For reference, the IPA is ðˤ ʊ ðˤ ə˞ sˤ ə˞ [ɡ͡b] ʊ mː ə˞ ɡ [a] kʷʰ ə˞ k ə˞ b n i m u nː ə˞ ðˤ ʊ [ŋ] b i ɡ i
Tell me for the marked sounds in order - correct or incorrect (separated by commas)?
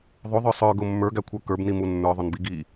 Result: incorrect, incorrect, incorrect